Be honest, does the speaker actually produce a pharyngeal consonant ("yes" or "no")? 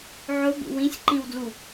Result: yes